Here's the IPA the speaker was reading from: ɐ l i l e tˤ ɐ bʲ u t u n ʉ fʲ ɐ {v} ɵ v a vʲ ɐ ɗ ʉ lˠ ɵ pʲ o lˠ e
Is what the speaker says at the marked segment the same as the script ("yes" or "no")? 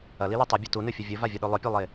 no